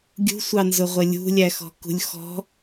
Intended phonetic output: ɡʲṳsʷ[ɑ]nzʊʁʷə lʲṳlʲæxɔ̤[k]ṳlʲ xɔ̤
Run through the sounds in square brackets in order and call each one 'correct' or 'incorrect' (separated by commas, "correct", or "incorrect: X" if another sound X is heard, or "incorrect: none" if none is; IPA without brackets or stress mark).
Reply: correct, correct